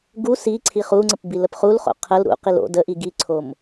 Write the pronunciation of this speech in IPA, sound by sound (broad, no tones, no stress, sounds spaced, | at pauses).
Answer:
ɡ u s i ǀʰ i χ u ŋ͡ǀ ə p b i l ə p χ u l χ o̰ qʰ ə l ɾ ṵ q i l o̰ d ə ʔ i ɡ i ǀʰ o m